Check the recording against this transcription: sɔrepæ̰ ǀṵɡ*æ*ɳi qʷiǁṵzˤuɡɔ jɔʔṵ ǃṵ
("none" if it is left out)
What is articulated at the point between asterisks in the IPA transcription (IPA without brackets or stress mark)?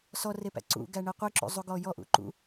æ